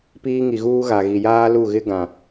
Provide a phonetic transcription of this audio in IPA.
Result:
p iː˦ ŋ i˨ ɣ uː˦ ɣ a˨ ɣ i˨ j aː˦ l u˦˨ ɣ ɪ˦ ɡ ã˨

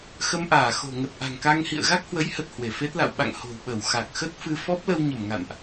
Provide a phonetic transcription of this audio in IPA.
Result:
x ə˧ m ʔ aː˧˩ x o̤˨˩ ŋ ə˨˩ t̚ ʔ a̤˨˩ ŋ k a˧ ŋ h ḭ˧˨ ə̯ ɣ a˦˥ k̚ h w ə˨˦ j h ə˨˩ t̚ h w e˧˩ f e˦˥ t̚ l a̰˧˨ w ɓ a̰˧˨ ŋ h o̤˨˩ w ɓ ə˧˩ w x a˨˩ k̚ x ə˦˥ t̚ f ɨ˧ f ɔ˦˥ p̚ l ə˧ w ɲ ə˧˩ m ŋ a̰˧˨ n ʔ

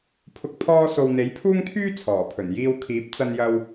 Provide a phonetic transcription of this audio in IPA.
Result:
pʰ ʊ˧ k̚ pʰ ɔː˥ s o˧ w n̪ e˨˥ j pʰ uː˥ ŋ t̪ʰ yː˥ t͡sʰ ɔː˨˩ pʰ ɵ˨˩ n j iː˧ w kʰ iː˨˥ p̚ t͡s ɐ˧ n j ɐ˧ w

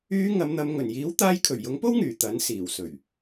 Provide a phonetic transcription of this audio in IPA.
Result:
yː˨˧ ŋ ɐ˨˧ m n̪ ɐ˨˧ m ŋ ɵ˨˩ n j iː˨˥ w t̪ aː˧ j kʰ ɵ˨˩ ɥ j ʊ˨˥ ŋ p o˥ w ŋ yː˨˩ t̪ ɐ˨˥ n s iː˨˩ w s ɵ˨˩ ɥ

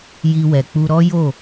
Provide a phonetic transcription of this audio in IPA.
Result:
j i˧ w ɛ˨ k͡p u˧ ɾ ɔ˦ j o˦˨

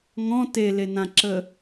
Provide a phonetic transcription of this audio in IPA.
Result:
ŋ ɔ̃ t e l e n ã ǁ ə

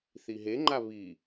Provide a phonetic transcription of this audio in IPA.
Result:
θ i ɦ e ŋ͡ǃ a β i

